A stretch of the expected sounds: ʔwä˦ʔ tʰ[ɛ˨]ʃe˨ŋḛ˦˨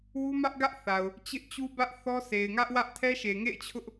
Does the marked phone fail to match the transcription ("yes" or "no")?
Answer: yes